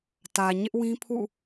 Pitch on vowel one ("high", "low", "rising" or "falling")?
low